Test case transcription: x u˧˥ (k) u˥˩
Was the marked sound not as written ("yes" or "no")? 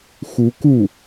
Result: no